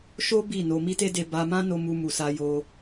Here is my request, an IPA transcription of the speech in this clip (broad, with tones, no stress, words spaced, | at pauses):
ʃo˦ bi˦˨no˧ mi˦te˦de˧ ba˧mã˦no˧ mu˧mu˨sa˧ jo˧